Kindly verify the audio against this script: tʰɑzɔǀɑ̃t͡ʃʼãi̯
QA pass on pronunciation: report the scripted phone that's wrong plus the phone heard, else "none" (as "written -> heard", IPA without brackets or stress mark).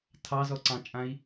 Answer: none